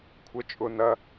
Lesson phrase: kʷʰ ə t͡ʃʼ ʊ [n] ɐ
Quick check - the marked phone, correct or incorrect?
correct